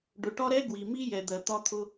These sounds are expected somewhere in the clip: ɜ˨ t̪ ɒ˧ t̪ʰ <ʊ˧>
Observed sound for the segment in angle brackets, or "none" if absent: ʊ˧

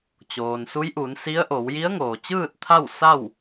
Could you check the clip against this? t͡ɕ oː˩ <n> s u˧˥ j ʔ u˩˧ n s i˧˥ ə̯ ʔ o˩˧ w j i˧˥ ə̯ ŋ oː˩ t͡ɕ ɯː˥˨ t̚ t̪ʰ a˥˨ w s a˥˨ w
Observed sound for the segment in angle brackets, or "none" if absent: n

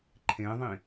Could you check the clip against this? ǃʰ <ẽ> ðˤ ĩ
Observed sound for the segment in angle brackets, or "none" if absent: ẽ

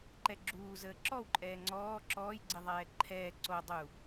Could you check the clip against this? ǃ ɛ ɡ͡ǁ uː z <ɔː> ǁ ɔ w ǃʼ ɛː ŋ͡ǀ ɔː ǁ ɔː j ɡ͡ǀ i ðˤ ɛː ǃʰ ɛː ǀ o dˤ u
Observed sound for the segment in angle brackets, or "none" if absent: əː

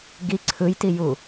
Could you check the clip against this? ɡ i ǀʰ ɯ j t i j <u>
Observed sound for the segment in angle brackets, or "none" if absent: u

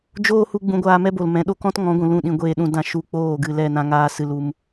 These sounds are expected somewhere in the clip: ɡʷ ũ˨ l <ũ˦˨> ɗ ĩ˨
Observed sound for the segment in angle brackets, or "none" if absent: ũ˦˨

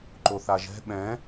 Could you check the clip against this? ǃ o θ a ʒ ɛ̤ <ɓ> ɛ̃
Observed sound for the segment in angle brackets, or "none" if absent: ɓ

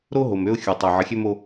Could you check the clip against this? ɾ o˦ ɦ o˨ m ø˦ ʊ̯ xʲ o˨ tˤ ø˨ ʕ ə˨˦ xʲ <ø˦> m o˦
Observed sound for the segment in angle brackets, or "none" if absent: ø˦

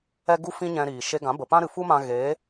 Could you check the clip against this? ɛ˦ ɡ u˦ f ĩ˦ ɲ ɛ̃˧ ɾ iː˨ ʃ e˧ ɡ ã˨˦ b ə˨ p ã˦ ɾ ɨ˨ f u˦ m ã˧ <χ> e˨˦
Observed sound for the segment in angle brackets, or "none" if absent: ɣ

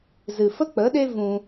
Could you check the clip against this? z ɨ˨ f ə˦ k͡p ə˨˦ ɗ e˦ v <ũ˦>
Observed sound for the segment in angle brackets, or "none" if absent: ũ˧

